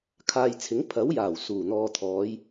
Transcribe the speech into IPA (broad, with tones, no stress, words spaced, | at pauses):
kʰaː˨jt͡sʰɪ˨˥ŋ pʰɐ˨˥wjaː˨˩w suː˨˩n̪ɔː˨t̪ʰɔː˨˧j